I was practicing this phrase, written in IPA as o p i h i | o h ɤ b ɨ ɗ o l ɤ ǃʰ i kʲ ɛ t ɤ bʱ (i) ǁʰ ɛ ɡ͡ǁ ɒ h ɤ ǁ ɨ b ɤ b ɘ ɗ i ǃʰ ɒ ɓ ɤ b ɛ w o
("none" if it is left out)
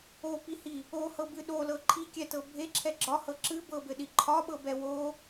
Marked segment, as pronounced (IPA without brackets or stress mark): e